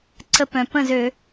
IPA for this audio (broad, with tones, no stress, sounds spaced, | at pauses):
ǀ ə˧˩ p œ̃˩ p ə̃˥˩ z ø˧˩˧